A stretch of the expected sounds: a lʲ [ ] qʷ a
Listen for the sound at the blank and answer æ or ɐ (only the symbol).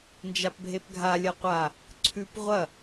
ɐ